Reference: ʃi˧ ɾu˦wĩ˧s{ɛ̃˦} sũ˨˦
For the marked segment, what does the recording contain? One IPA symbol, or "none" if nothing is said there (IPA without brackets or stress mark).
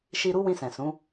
ɛ̃˨